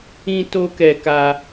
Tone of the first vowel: high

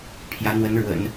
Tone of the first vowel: rising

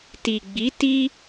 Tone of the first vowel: low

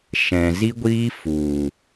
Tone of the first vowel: low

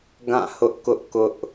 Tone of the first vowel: falling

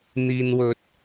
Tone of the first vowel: low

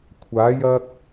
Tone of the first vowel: rising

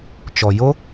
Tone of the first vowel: low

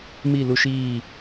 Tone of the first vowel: falling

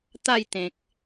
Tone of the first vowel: falling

